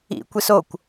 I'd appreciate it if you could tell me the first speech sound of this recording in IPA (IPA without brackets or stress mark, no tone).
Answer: ḭ